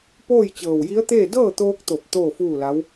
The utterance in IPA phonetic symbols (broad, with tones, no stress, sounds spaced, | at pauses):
p oː˥˨ j t͡ɕ ɤː˧˩ w j i˧˥ ə̯ t̪ eː˥˨ d ɤː˥˨ t̪ oː˧ k̚ t̪ o˧˩ p̚ t̪ oː˥˨ f uː˥˨ l a˧˥ w